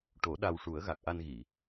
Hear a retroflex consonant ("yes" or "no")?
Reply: yes